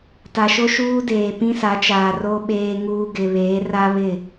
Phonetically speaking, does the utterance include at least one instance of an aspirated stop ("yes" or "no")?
no